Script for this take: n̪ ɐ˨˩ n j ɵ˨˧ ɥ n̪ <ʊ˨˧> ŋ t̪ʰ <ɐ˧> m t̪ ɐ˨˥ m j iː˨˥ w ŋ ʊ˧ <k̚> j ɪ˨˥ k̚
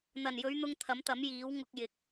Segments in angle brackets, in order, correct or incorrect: incorrect: ʊ˧, incorrect: ɐ˨˥, correct

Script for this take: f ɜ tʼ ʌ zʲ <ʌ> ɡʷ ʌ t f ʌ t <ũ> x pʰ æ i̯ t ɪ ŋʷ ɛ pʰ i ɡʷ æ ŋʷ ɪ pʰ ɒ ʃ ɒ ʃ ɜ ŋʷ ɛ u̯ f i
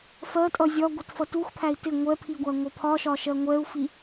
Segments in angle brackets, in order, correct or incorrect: incorrect: ɒ, incorrect: u

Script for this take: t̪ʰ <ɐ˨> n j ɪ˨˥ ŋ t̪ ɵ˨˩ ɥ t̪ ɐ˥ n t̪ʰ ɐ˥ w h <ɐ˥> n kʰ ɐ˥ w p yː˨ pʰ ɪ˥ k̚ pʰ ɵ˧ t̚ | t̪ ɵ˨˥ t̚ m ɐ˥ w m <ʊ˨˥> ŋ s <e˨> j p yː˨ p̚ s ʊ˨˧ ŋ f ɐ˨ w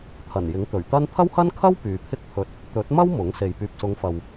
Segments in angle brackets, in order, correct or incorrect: incorrect: ɐ˨˩, correct, correct, correct

